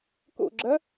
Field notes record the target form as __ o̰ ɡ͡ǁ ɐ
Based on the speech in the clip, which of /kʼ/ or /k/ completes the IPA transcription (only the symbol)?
k